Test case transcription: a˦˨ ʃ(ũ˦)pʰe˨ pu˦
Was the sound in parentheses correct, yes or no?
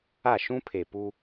yes